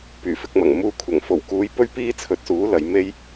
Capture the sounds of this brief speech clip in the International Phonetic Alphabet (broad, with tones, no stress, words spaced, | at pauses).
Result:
pyː˨˩fɪ˧k̚mɐ˨˩ŋ muː˧ kʷʰɐ˨˩ŋfo˨˩wkuː˨˧j pɵ˥ɥpiː˥t͡sʰɵ˨˥t̚suː˨˥ lɐ˨˧jme˥j